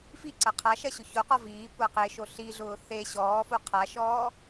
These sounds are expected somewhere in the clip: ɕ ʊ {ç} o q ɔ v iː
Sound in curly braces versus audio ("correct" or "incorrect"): correct